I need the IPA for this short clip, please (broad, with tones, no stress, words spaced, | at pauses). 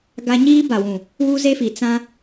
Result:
ɡa˦ ɲiː˦ba˨wũ˨ | wu˦ze˦fi˨ t͡sã˦